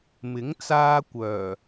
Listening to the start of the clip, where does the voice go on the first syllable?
rising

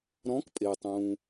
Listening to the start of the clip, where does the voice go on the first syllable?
rising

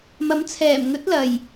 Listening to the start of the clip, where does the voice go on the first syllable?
rising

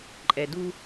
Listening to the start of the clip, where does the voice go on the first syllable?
low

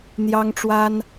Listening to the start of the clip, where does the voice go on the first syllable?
high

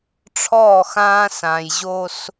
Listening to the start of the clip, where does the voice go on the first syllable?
falling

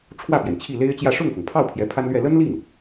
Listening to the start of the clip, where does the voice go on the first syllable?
falling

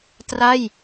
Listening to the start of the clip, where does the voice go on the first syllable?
falling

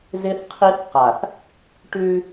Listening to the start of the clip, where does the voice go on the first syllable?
high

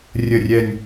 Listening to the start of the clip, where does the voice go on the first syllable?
low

